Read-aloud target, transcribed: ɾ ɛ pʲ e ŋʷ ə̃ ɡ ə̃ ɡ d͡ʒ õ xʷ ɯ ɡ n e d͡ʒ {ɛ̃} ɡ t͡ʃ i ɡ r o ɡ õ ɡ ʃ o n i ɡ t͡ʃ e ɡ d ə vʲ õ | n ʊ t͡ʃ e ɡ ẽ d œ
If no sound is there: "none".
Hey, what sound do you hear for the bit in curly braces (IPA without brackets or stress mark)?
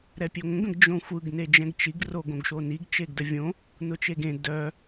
ɛ̃